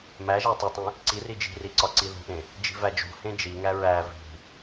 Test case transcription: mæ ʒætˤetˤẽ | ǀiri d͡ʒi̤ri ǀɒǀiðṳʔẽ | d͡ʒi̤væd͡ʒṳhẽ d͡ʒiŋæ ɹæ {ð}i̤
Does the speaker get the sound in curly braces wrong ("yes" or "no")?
yes